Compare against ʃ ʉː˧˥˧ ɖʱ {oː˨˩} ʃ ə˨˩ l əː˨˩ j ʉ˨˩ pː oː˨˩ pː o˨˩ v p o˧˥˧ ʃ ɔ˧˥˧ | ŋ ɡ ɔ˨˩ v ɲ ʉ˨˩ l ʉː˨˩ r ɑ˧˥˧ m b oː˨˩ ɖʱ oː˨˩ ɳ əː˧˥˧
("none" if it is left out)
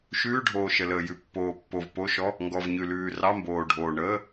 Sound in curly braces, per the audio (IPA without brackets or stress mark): oː˨˩